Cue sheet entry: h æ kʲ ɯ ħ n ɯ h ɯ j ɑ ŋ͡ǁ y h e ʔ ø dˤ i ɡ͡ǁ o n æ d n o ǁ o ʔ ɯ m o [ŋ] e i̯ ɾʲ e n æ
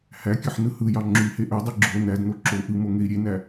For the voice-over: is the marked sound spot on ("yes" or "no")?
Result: yes